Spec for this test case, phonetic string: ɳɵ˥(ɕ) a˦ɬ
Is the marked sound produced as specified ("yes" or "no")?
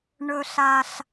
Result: no